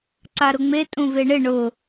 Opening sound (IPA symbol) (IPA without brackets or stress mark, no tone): ǀ